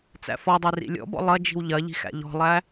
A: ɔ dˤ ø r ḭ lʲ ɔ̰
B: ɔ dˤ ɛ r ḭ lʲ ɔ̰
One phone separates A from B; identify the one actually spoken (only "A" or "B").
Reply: A